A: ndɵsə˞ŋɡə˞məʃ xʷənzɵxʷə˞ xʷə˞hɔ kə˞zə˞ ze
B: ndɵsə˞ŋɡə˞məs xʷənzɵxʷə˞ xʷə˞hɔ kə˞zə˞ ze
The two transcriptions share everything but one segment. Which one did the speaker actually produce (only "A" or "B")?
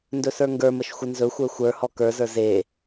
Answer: A